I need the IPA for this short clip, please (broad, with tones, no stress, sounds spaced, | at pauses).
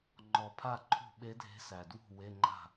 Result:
ŋ͡ǃ ɔ˨˩ pʰ a˥˩ ǃʰ ṳ˥˩ ɓ e˧˥ dʱ e̤˧˥ s æ˨˩ d w ṳ˥˩ w e˧˥˧ ŋ͡ǃ a̤˥˩